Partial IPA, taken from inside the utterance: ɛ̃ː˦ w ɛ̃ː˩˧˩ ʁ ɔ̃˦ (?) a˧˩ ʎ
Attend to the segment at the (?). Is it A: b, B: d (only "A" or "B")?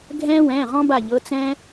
A